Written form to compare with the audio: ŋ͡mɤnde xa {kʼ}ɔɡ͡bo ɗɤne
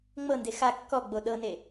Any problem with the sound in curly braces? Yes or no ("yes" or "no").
yes